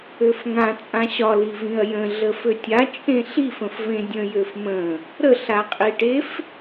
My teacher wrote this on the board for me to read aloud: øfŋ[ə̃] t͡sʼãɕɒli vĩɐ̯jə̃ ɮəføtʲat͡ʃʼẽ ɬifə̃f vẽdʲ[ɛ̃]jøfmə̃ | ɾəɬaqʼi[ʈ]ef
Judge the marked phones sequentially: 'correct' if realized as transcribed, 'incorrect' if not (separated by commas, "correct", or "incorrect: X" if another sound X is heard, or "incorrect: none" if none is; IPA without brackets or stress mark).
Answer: incorrect: ã, incorrect: ə̃, correct